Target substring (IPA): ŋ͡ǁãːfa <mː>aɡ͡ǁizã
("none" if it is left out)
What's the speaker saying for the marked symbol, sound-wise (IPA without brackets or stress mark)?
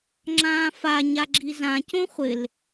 ɲ